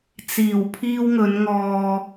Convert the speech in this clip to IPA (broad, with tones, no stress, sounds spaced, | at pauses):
t͡s iː˨˩ w pʰ iː˧ w ŋ ɵ˨˧ n ŋ ɔː˧